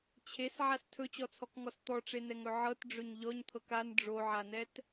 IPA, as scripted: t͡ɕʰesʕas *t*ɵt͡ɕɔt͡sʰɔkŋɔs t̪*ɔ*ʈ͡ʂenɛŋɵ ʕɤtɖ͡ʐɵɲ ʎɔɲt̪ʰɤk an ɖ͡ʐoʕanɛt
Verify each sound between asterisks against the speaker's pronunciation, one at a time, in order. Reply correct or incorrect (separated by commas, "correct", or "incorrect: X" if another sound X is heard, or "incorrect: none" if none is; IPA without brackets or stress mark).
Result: incorrect: tʰ, correct